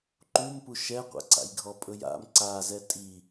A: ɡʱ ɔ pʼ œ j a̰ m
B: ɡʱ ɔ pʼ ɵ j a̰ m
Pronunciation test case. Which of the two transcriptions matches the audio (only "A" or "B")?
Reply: B